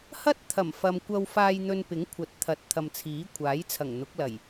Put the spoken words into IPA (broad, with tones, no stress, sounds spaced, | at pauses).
h ɐ˥ t̚ t̪ʰ ɐ˨˩ m f ɐ˨ m kʷ ɐ˧ w f aː˧ j n̪ ɵ˧ n p ɪ˨˥ ŋ kʷʰ ɐ˨˥ t̚ t̪ʰ ɐ˨˥ t̚ t̪ʰ ɐ˨ m t͡sʰ iː˨˥ kʷʰ aː˨˥ j t͡sʰ ɐ˨˩ ŋ n̪ ʊ˨˥ k̚ l ɐ˨˩ j